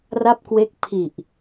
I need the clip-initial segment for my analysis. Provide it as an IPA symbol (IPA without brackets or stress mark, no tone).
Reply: r